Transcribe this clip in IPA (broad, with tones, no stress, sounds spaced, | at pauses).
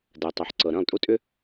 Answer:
d ɜ˨ tˤ o˨ ħ ǀ ɤ˨ ɾ ə̃ː˦˨ lˠ tʼ u˦ tʼ ʏ˦